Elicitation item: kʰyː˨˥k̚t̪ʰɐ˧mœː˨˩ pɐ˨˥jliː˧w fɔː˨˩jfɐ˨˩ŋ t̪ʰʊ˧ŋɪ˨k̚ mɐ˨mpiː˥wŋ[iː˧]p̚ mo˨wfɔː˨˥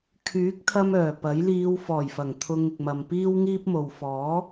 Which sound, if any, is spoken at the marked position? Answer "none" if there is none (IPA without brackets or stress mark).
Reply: iː˥